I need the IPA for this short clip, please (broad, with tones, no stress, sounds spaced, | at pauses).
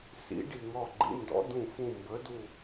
s ḭ˨˥ ɖ i˦˨ ŋ ɔ˦˨ ɡ͡ǃ ḭ˨˥ n d ɔ̰˨˥ d ũ˦˨ f ũ˦˨ m b ə˨˥ d u˦˨